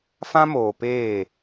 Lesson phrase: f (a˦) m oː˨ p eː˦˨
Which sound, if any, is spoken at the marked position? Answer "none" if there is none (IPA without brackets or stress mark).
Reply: ã˦